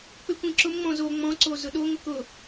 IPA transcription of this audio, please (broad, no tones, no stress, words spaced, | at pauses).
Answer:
k͡pɪkʷĩǁʊmŋ͡mɔ̃ zo ŋ͡mɔ̃ǀo zʊɗoŋʷɪ kʊ